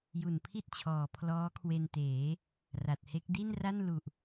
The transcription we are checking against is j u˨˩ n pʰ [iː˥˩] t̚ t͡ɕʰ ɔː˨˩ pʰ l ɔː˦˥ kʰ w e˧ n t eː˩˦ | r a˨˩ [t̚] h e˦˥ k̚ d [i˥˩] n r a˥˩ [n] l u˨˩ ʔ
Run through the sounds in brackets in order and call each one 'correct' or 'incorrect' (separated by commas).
incorrect, correct, correct, correct